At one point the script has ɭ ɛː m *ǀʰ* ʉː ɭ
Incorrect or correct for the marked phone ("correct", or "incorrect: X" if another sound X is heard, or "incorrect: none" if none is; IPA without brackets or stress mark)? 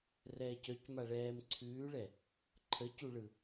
correct